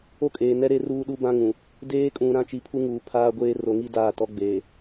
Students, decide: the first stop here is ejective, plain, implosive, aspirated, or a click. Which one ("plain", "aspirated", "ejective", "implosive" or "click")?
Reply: ejective